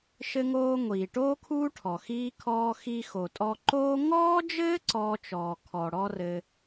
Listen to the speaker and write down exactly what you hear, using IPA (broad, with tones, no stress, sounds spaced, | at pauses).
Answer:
ʃ ɘ˧ ŋ oː˧ ŋʷ iː˩ ʈ oː˥ kʰ uː˥ ʈʰ ɔ˩ x iː˧ kʰ ɔː˧ x i˧ x o˩ tʼ ɔ˧ ǃ oː˥ ŋ ɔː˥ d͡ʒ ɘː˥ ǀ ɔː˧ t͡ʃ ɔː˩ kʰ ɔ˩ ɽ ɔ˥ r ɘ˧